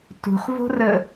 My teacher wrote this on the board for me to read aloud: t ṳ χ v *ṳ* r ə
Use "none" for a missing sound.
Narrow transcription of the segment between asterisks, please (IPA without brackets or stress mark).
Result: o̤